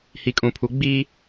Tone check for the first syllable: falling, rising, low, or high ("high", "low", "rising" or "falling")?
low